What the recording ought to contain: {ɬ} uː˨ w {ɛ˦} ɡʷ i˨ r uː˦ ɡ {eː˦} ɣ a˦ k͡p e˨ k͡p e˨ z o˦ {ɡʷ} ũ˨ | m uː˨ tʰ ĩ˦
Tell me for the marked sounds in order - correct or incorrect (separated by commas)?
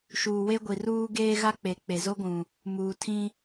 incorrect, incorrect, correct, correct